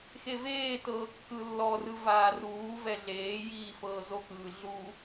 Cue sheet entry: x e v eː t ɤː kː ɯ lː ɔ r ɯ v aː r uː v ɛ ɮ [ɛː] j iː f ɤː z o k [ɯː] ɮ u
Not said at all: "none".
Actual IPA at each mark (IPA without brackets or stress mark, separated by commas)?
eː, ɯː